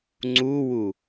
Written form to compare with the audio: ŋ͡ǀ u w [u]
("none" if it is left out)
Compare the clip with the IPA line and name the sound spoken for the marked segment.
u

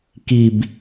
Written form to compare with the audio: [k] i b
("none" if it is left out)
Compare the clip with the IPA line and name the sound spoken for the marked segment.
k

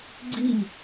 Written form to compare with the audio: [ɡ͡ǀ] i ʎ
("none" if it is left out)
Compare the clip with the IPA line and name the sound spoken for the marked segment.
ɡ͡ǀ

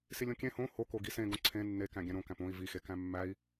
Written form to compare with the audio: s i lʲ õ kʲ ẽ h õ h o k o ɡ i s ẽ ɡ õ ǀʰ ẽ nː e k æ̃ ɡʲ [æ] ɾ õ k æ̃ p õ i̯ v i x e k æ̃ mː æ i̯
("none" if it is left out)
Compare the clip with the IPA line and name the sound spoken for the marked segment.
æ̃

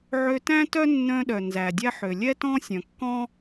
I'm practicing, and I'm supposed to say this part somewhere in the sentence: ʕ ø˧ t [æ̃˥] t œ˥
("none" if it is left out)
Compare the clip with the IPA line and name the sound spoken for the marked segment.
æ̃˥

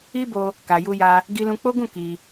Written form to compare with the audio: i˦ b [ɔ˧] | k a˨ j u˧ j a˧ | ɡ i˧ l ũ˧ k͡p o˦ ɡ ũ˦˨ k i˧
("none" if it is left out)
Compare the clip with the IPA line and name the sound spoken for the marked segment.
o˧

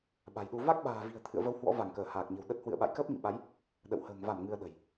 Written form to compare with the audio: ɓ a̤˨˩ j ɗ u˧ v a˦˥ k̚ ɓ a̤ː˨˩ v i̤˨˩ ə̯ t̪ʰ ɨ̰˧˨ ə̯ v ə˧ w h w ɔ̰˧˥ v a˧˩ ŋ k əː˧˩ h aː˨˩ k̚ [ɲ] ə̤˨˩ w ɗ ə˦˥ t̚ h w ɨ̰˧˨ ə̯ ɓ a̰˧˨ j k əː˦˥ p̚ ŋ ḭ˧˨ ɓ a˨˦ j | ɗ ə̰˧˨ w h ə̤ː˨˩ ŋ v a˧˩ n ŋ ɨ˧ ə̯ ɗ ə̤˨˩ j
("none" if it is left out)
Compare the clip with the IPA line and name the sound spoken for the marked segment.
ɲ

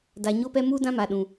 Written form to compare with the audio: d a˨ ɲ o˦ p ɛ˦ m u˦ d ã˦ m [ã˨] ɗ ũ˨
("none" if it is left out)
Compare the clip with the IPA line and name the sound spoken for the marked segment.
a˨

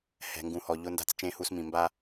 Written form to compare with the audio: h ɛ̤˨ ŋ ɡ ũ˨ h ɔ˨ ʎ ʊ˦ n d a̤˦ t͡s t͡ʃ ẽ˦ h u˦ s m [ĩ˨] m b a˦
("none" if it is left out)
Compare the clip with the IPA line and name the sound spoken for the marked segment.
ĩ˨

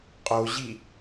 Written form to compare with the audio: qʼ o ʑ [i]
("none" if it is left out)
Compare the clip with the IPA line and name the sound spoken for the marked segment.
i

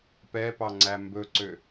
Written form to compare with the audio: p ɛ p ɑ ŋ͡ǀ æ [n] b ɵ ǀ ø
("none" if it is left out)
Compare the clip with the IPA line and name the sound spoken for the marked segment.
m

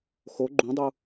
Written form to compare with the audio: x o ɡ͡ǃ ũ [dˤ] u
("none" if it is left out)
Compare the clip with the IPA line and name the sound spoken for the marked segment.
dˤ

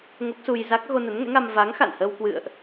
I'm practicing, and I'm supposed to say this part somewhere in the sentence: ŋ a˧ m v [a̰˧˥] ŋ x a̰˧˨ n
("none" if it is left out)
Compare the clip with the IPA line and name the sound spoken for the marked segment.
a˨˦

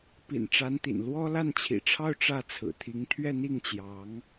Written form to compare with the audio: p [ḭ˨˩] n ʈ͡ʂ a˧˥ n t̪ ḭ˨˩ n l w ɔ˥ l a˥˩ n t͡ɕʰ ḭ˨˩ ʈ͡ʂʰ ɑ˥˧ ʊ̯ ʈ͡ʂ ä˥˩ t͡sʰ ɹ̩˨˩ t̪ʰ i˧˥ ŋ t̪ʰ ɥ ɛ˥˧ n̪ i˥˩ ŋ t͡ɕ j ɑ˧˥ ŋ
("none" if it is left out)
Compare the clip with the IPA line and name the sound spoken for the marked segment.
ḭ˨˩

